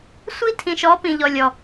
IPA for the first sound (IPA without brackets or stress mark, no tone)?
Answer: sʷ